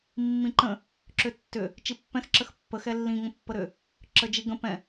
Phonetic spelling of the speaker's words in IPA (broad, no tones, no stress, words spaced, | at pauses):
mːĩǃə̃ | ǁʏtːʏ | t͡ʃipːɛ̃x ǁəxpːə xɛlːĩ ŋə̃pːəɾʏ | ǁəd͡ʒiɡə̃ pɛ̃